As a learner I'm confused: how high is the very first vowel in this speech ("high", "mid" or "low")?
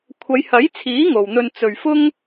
low